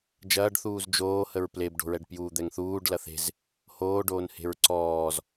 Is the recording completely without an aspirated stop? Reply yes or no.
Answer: yes